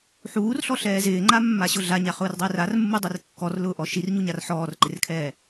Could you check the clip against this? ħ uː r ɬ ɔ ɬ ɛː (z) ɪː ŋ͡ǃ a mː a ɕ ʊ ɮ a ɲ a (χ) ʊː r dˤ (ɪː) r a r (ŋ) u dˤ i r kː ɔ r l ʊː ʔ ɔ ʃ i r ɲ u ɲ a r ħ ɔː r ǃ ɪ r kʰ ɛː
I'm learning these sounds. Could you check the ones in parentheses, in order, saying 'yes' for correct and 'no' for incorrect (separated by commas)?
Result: yes, yes, yes, no